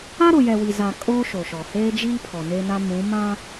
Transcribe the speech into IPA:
a˦ ɾ ʊ˨ j ɛ˨ w i˨ z a˨ kʼ oː˦ ʃ o˨ ʃ ɔ˨ h eː˦ d͡ʒ iː˦ pʰ ɔ˨ n e˦ n a˦ m ũ˨˦ m ã˦

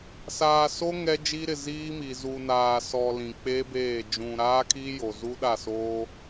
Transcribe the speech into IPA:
s aː˨ s o˦ ŋ ɛ˦ d͡ʒ i˦ ɾ ɪ˨ z iː˦ m i˨ z u˨ n aː˨ s ɔ˨ l ĩ˨ k͡p e˦ b eː˦˨ d͡ʒ ũ˨ ɾ aː˦ kʰ i˦ j o˨ z u˦ ɗ a˦˨ s oː˦

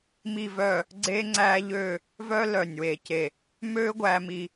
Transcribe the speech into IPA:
m i˥˧ v œ˥˧ | ɡ͡ǀ e˥ ŋ͡ǀ æ˥ ʎ ø˥˧ | v œ˥ l œ˧˩ nʲ w e˧˩ c e˧˩ | m ø˥ ɡʷ æ˧ m i˧

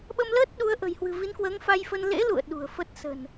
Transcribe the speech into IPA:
ɓ ə˧ m l əː˦˥ t̚ ɗ u˨˦ ə̯ ʔ ə̤˨˩ j h w ɨ̤˨˩ v i˨˦ n k w əː˨˦ ŋ f a˧ j f ə˧ n l ḛ˧˥ l ṵ˧˨ ə̯ ɗ ṳ˨˩ ə̯ f ə˦˥ t̚ s ə̤˨˩ n

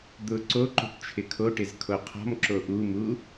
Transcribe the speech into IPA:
d̪ ʊ ǀ o ǃ ṳ ʈ t͡ʃʰ ɪ kʰ o ʈ ɪ z kʰ o qʰ ɔ̤ m ǁ o ʔ u m u

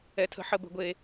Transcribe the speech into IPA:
ɛ˧ tʰ ə̤˥˧ ħ ə˥˧ b ə̤˥˧ ɡʷ e˧

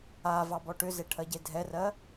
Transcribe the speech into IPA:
a v ɑ b ɔ ʈ ʏ z e ʈʰ ɜ ɟ e dʱ ɛ r ɜ

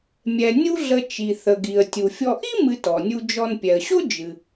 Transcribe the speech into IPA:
mʲ ɛ˩ nʲ u˦ ɮ ə˨ t͡ʃ i˩ θ ə˩ ɡ i˩ ə̯ tʲ u˩ fʲ ɔ˨ ʔ i˥ m ɨ˨ t ɔ˩ nʲ u˨ d͡ʒ ɔ˨ n pʲ ɛ˩ ə̯ ɕ o˥ d͡ʒ ɨ˩

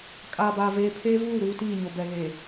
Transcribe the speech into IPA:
kʼ aː˨ b aː˨ v eː˨ pʰ eː˦ v uː˦˨ ɾ uː˦ t iː˦˨ ɲ o˨ b ɛ˨ ɣ eː˨

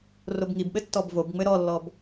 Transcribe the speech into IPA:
r o b ŋ i b ɓ ɘ tː ɔ b v o b ŋ͡m ɘ ɾ ɔ lː ɔ b

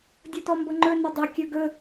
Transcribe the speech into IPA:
dʲ ɤ t ɔ m b ɤ ŋ͡ǃ ɵ n ə dˤ ɐ kʲ ɵ ɡ ɵ

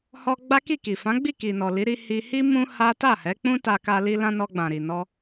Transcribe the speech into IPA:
h ɔ˧ ɡ͡b a˦ k i˦˨ k i˨ f ã˨˦ ɡ͡b i˦˨ k i˨ n ɔ˨ l i˨˦ ɾ i˧ h i˧ h i˦ m ũ˦ h a˦ t a˦˨ h ɛ˨˦ k͡p ũ˦ t a˧ k a˧ l i˧ l ã˧ n ɔ˧ ɡ͡b ã˨ ɾ i˨ n ɔ˧

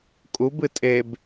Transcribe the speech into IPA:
kʼ u b ɨ tʼ e b

